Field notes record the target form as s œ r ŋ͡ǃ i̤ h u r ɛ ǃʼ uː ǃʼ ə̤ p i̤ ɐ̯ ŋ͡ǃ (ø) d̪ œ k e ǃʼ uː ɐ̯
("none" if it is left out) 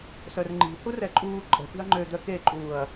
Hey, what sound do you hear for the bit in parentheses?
ø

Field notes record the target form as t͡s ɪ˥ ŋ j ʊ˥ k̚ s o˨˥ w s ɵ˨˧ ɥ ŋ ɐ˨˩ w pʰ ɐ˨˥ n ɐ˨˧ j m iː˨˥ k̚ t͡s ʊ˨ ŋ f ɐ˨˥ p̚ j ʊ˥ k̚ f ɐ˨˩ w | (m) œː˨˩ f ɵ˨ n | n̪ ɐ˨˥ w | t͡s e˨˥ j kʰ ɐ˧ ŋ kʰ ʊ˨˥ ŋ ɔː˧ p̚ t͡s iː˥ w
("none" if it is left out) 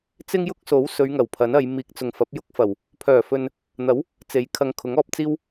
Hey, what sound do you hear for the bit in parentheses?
pʰ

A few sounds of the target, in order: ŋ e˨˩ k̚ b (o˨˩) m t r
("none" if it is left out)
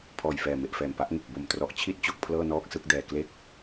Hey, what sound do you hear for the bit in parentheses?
o˨˩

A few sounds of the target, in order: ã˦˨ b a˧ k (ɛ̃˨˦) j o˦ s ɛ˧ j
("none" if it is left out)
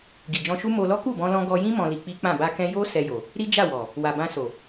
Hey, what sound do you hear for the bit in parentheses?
ɛ̃˦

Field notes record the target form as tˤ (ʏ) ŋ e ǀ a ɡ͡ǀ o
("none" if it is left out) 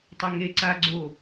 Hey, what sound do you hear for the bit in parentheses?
ʏ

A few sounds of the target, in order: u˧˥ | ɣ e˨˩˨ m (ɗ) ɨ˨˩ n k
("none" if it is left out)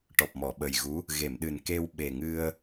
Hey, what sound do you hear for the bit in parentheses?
ɗ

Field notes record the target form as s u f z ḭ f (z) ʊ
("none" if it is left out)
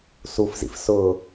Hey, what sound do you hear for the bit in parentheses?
s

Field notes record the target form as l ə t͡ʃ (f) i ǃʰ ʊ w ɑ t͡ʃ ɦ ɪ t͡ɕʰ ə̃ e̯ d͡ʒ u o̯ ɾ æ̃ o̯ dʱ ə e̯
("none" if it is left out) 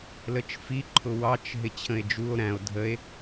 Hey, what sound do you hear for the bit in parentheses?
f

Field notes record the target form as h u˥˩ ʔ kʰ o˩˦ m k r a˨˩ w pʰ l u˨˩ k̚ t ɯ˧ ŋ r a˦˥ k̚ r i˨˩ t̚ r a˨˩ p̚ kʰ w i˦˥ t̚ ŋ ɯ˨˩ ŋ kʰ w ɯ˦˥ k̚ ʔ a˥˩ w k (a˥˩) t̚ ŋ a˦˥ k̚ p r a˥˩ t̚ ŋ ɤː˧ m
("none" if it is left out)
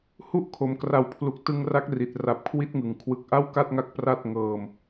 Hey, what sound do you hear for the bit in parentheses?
a˥˩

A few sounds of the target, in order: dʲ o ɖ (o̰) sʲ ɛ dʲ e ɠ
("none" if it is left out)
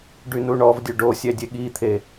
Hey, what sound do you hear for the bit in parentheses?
o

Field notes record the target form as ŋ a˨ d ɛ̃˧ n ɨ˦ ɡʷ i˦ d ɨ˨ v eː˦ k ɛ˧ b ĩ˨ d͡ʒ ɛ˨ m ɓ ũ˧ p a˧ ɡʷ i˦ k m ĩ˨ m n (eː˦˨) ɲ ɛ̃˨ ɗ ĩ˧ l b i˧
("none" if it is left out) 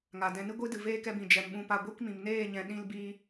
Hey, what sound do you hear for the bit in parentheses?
eː˦˨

